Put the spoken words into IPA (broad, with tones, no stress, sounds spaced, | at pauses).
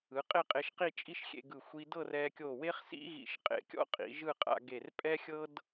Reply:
ɯ˩˧ qʼ e˥˧ qʼ e˧ ʃ q i˥˧ t͡ʃʼ i˥ ʃ xʲ ḛ˧ ɡ ɯ˧˩ xʷ i˧ d ɤ˥˧ r ɛ˧ kʲ o˧˩ w e˥ χ s ḭ˥ ɣ ḭ˧˩ ʃ qʼ ḛ˧˩ kʲ ɔ̰˥ qʼ ḭ˩˧ ʒ ɯ˥˧ qʼ a̰˧ ɡ e˧˩ r pʼ ɛ˥ xʲ ɤ˥ d